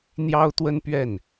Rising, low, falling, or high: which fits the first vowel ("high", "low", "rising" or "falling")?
high